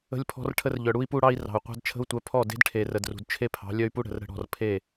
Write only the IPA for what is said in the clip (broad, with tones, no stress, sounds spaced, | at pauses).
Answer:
ə̤˦ lʲ pʰ ɔ̤˦ r ʈʰ ə˦ r ʎ œ˨ ɽ u˦ i̯ p u˦ ɽ ɑ˦ i̯ r ɑ̤˨ u̯ qʷ ɑ̤˦ d t͡ʃʰ ə̤˦ u̯ tʷ œ˨˦ pʰ ɔ˦˨ d e̤˦ d ʈʰ e˨ r ə˨ d r ṳ˨ d t͡ʃʰ e˦ pʰ ɑ̤˨˦ lʲ œ˦ y̯ p u˦ ɽ ə̤˨ r ɾ ə̤˦ ɽ ɔ̤˨ r pʰ e˦˨